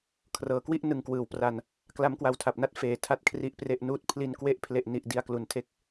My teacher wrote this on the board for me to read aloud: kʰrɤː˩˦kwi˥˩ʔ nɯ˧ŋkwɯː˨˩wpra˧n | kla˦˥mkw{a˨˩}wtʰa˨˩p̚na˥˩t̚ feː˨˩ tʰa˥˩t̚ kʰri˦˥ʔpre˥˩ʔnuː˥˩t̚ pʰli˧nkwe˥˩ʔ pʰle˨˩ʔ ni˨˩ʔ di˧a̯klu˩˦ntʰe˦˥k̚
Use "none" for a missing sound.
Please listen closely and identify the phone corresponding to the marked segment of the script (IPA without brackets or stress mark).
a˧